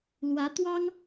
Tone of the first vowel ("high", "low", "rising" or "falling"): rising